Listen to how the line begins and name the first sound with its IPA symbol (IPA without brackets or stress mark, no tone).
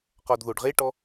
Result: q